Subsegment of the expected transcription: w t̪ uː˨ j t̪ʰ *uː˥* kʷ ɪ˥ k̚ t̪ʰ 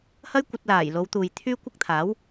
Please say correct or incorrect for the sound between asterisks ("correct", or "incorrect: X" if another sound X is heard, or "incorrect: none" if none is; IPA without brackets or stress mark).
incorrect: yː˥